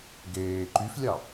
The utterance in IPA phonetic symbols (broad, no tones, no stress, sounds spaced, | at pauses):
ɡ eː ǃ y f lʲ ɑ